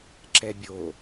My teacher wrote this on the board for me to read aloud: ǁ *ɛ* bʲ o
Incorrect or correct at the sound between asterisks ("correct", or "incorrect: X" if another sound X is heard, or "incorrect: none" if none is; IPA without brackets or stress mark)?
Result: correct